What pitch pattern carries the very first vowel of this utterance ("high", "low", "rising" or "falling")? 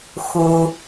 low